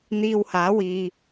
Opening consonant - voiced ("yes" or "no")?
yes